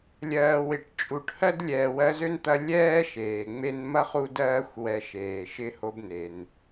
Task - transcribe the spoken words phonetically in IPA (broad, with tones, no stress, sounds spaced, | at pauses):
lʲ ɜː˨ w ɪ˩ ʈ t͡ʃʼ u˨ ʈ h ɜ˥ d lʲ ɛː˨ w ɜ˦ z ø˥ n t̪ ɐ˦ lʲ ɛː˥ ʃ eː˩ ŋ͡m e˦ n m ɐ˥ χ u˦ d ɜː˦ xʷ w ɛ˨ ʃ eː˩ ʃ ɪ˦ h o˥ b n e˩ n